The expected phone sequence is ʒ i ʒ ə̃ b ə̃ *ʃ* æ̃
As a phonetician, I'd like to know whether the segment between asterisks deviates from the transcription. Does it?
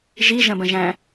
yes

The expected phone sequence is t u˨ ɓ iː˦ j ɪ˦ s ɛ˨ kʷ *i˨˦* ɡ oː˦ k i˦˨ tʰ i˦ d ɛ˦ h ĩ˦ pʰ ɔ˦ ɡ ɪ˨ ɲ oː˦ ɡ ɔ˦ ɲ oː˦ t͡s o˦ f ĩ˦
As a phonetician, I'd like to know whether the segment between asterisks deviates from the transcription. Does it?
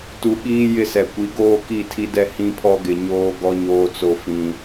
no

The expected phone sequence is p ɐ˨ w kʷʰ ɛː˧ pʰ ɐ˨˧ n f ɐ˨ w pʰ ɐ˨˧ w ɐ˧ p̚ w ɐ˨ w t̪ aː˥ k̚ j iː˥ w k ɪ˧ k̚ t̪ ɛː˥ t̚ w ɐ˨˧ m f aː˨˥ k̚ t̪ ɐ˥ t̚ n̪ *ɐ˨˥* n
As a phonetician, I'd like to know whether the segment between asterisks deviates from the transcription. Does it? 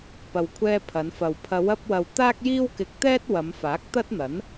no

